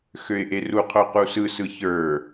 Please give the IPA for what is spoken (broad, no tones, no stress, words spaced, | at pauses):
xøɪ̯ʔeruqʰo qusɯsɯ çə˞